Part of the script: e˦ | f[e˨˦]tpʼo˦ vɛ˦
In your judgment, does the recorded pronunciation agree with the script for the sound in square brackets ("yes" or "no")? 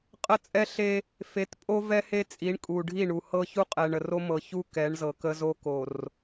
yes